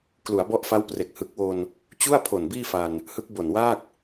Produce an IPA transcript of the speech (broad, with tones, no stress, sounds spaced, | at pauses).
k l u˩˦ a̯ b ɔ˦˥ ʔ f a˦˥ w p r e˨˩ k̚ h ɯ˨˩ k̚ w o˧ n | t͡ɕ u˥˩ a̯ pʰ o˨˩ n b iː˥˩ f a˧ n | h ɯ˦˥ k̚ b o˨˩ n w aː˥˩ k̚